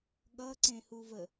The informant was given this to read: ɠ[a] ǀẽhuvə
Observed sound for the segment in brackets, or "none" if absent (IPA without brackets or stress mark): ʌ